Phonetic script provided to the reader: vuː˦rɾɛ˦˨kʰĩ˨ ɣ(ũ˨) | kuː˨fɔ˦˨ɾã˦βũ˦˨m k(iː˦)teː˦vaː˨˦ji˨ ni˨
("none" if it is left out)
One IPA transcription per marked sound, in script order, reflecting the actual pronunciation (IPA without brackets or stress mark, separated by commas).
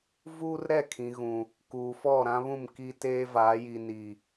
ũ˨, i˦